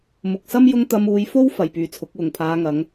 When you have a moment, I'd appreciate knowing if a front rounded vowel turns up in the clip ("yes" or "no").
yes